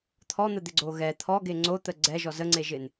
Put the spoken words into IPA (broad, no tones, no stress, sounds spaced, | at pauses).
t̪ʰ ɔ n̪ ə d̪ ɪ ɡ͡ǀ o ɣ ɛ t̪ʰ ɔ ɡ e ŋ͡ǀ o t̪ ə ɡ͡ǀ ɛ ʒ ɔ z ə ŋ͡ǀ e ʒ ɪ n